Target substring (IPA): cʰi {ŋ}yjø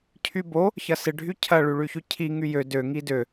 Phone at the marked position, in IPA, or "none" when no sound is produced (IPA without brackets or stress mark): ŋ